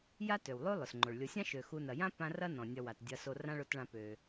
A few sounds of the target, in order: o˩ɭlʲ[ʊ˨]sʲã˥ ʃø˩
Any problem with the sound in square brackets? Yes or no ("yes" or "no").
no